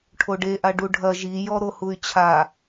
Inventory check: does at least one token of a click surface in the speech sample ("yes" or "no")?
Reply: no